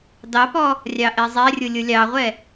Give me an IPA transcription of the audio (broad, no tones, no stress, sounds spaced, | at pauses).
d ɑ p ɔ | rʲ ɑ ʔ ɛ zˤ ɛ rʲ ʊ lʲ ʊ lʲ ɑ ʁʷ ɛ